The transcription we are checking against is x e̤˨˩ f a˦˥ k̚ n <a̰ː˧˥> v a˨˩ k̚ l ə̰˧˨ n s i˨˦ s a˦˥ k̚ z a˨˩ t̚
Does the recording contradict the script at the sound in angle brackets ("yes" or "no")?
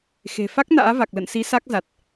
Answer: no